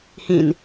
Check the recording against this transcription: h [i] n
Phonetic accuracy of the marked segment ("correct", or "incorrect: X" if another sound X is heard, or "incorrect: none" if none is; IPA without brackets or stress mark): incorrect: ĩ